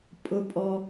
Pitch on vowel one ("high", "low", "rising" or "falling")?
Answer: high